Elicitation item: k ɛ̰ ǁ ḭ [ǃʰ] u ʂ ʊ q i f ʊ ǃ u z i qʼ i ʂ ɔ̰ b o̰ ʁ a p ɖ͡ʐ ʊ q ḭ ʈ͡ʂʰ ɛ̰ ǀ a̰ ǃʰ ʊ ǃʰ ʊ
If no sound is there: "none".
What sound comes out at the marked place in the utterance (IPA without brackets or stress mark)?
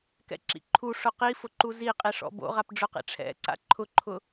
ǃʰ